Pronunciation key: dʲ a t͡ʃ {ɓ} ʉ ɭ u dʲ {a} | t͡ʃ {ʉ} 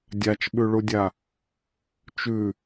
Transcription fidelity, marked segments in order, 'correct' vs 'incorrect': correct, correct, correct

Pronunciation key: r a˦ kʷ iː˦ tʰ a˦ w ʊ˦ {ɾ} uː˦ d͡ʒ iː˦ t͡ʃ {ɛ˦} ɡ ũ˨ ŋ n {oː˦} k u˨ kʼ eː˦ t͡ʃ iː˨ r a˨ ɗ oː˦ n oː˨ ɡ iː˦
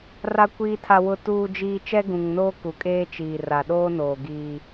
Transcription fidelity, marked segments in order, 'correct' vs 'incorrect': incorrect, correct, correct

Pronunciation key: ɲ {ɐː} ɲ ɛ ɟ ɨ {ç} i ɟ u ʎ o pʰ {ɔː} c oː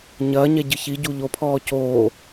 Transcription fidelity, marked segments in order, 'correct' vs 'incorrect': correct, correct, correct

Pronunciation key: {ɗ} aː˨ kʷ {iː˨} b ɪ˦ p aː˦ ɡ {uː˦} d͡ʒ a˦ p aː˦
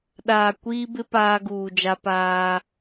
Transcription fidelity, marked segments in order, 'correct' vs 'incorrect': correct, incorrect, incorrect

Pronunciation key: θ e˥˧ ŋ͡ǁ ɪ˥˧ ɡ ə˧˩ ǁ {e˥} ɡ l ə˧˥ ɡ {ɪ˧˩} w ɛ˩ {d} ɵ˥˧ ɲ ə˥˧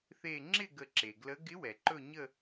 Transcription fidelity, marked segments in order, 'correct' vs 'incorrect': incorrect, incorrect, incorrect

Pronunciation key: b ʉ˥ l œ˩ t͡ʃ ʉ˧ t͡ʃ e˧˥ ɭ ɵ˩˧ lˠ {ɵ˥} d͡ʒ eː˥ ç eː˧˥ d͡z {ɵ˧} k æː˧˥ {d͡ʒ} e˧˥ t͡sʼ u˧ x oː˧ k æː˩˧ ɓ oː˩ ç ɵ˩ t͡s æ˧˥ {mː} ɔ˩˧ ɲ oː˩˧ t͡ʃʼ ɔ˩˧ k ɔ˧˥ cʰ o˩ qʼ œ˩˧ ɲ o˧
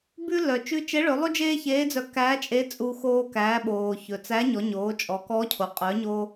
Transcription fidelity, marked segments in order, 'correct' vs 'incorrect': correct, incorrect, incorrect, incorrect

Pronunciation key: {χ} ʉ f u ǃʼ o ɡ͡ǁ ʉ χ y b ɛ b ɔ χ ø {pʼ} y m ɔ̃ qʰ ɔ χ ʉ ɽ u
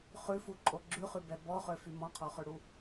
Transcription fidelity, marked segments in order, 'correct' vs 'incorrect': correct, incorrect

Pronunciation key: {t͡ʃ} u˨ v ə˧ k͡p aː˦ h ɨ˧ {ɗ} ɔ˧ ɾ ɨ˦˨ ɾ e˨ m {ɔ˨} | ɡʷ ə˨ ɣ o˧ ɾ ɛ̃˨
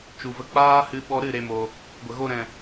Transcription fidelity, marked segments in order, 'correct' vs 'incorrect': correct, incorrect, incorrect

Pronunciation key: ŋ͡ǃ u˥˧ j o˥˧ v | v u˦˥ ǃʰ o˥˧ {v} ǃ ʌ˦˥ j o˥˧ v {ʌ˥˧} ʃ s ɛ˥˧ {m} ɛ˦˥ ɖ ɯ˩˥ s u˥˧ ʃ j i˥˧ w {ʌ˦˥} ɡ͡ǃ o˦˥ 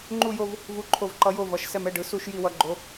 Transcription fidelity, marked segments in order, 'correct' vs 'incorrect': correct, incorrect, correct, correct

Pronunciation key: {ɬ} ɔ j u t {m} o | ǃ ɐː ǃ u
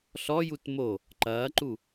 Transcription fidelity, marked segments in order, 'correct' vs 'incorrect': correct, correct

